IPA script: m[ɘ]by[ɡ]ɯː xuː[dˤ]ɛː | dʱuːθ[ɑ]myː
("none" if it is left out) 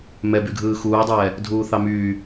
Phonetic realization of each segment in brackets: ɛ, ɡʱ, dˤ, ɑ

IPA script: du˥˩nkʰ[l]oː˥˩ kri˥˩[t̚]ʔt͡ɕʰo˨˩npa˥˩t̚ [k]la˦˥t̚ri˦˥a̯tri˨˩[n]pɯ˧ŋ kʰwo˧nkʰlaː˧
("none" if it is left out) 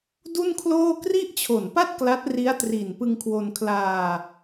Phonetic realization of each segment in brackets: l, none, k, n

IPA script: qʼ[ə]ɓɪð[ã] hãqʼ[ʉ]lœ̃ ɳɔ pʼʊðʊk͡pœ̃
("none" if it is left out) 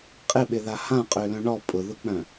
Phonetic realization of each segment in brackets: ɪ, a, ø

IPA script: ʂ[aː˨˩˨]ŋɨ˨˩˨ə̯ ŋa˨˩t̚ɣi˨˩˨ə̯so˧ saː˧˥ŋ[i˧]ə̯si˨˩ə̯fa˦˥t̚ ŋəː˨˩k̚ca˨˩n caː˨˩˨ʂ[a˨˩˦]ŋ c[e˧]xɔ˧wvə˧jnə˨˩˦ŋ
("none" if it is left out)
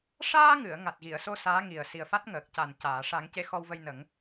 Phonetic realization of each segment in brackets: aː˧, i˨˩, a˨˩˦, e˧

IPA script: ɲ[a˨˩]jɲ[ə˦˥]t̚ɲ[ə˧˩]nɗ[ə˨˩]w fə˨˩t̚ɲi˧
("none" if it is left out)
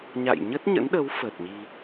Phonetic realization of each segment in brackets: a̰˧˨, ə˦˥, ə̰˧˥, ə˨˦

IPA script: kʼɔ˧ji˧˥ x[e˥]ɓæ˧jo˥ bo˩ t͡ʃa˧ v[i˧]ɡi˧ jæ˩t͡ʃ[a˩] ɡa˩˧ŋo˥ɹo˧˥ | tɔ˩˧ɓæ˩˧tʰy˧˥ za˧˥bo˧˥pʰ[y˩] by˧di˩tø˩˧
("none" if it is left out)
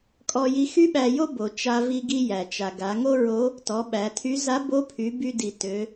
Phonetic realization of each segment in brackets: y˥, i˧, a˩, y˩˧

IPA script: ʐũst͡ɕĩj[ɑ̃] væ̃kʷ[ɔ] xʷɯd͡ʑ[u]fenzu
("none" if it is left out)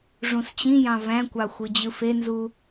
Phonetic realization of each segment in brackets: ɑ̃, ɑ, ɯ

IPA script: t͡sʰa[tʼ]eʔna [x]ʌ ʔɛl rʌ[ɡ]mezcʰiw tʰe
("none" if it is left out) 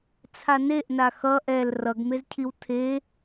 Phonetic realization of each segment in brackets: n, x, ɡ

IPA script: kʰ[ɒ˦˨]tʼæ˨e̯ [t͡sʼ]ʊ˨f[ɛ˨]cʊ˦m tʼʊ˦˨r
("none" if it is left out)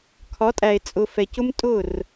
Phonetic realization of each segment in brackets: ɒ˨˦, t͡sʼ, ɛ˨

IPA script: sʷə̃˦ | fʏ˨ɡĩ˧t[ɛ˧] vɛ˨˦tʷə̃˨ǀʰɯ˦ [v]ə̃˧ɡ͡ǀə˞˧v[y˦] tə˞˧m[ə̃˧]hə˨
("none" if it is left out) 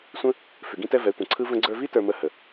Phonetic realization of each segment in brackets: ɛ˧, v, i˦, ə˧

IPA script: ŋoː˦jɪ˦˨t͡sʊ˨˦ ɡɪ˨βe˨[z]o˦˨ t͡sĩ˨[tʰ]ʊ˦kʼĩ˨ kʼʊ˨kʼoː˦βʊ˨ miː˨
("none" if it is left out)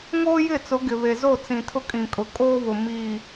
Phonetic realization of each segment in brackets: z, tʰ

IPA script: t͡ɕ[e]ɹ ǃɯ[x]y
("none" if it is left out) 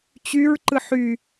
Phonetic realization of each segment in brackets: y, ħ

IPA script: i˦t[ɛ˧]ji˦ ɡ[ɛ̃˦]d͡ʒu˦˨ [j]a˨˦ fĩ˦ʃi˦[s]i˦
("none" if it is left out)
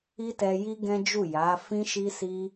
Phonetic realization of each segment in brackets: ɛ˧, ɛ̃˦, j, s

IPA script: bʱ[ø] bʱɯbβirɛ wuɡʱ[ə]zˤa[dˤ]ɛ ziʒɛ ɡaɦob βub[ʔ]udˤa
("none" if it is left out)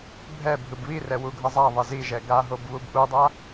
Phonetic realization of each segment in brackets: ɛ, ʌ, ðˤ, ʔ

